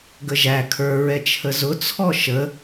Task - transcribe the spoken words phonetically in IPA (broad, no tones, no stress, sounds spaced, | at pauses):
ɡ ə ʒ æ kʰ ə˞ ɹ ɛ t͡ʃʰ ə z ʊ t͡sʰ ɔ ʃ ə